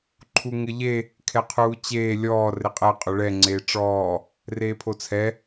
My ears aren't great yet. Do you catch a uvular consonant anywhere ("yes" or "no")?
yes